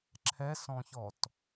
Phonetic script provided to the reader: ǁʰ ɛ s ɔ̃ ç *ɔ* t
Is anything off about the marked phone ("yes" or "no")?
no